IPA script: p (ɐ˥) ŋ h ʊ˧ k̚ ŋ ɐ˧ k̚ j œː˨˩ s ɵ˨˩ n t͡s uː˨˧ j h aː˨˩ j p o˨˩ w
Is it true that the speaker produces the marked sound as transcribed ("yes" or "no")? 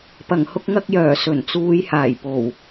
no